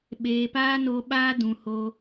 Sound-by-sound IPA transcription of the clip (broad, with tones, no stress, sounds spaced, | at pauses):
ɓ eː˧ p aː˦ n o˧ ɓ aː˦ d ũ˧ h o˦